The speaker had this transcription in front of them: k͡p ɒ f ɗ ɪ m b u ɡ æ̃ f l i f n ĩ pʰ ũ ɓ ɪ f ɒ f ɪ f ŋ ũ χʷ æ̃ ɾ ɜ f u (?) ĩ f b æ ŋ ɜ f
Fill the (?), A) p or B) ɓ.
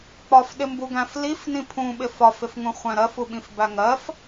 B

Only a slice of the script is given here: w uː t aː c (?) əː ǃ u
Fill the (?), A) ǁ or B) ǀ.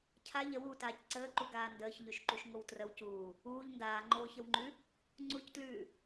B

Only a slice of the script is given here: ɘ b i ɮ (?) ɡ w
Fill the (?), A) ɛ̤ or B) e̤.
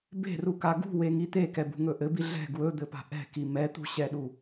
A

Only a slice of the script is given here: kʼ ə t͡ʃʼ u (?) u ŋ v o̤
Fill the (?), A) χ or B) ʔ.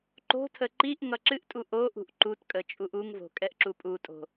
B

